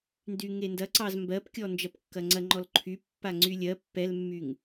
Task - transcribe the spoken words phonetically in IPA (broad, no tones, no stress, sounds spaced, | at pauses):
n d y ŋ e n d ɐ ǀ ɑ z m b ɜ p kʲ ɔ n d͡ʒ ɐ p kː ɐ ŋ͡ǀ ɐ ŋ͡ǃ ɔ l ǃʰ y pː a ŋ͡ǀ y lʲ ɜ pː ɛ l mː y ŋ